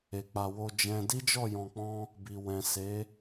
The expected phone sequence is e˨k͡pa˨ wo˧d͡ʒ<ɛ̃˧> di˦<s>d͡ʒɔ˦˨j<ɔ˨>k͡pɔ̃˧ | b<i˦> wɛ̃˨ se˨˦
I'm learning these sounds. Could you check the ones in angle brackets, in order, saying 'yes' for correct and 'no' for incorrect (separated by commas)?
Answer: yes, no, no, no